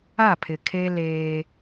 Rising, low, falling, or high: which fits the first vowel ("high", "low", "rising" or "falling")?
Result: falling